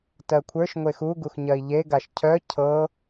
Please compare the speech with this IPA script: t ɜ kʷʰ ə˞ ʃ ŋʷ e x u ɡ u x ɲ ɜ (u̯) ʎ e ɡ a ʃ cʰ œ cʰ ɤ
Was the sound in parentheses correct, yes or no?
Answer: no